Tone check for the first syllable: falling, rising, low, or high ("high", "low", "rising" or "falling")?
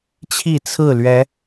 falling